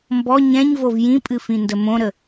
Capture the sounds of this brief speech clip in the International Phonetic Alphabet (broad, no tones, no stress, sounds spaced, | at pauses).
m b ɔ ɲ ɛ̃ ɲ v o v j ĩ pʼ ɨ f ĩ n d ə m õ ɾ ə